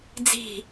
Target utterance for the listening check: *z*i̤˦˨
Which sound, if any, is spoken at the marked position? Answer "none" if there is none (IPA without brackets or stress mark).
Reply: d͡z